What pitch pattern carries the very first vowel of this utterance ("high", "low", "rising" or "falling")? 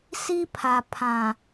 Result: high